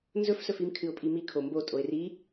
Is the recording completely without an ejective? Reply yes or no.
no